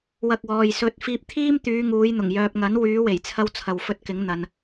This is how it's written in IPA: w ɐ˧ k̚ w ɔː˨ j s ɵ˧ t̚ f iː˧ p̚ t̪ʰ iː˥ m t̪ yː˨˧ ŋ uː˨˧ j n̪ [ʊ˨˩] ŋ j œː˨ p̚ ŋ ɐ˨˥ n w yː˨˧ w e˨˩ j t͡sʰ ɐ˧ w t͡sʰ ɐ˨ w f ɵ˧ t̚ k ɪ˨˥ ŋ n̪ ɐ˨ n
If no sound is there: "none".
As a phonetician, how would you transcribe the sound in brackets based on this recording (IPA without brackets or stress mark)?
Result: ʊ˨˩